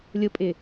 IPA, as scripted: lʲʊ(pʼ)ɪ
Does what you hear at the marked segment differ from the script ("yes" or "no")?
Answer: no